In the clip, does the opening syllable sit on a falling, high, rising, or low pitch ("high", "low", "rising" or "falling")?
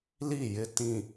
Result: falling